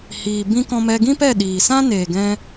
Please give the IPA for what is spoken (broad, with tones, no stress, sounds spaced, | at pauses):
h iː˨ b ĩ˧ k ɔ̃˧ m ɛ˧ ɡ ĩ˦ p ɛ˦˨ ɗ iː˨ s ã˦ n eː˨ ɡ ɛ̃˧